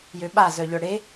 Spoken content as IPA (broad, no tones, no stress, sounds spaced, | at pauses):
j ø ɓ a z œ ʎ œ ɽ e